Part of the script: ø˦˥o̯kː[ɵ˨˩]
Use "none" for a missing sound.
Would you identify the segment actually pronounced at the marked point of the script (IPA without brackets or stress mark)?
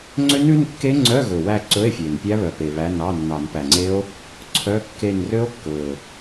ɵ˨˩